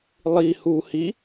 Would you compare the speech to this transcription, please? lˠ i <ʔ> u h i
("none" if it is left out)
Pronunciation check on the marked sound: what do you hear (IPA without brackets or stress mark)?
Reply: h